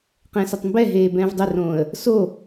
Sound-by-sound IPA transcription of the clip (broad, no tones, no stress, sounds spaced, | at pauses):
q ɛ̃ s ə tˤ m b ɛ ɦ eː b ɛ̃ː v dˤ ʏ r õː ə̯ | s o